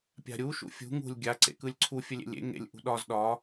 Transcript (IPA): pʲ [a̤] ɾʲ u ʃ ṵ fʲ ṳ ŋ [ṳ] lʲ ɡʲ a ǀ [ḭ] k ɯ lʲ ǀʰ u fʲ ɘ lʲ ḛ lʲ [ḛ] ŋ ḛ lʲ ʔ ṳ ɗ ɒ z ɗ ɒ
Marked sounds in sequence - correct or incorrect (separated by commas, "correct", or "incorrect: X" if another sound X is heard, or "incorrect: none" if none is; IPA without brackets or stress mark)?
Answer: correct, correct, incorrect: ḛ, correct